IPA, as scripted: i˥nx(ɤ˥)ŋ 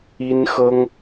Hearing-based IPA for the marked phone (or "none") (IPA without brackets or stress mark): ɤ˥